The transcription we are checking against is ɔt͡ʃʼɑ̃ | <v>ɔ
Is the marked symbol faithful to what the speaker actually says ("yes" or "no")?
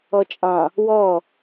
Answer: no